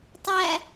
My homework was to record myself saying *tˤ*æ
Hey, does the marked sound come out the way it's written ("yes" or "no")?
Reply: yes